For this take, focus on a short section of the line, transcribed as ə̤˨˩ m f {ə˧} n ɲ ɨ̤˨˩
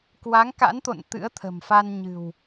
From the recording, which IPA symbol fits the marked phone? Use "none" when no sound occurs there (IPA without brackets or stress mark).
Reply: a˧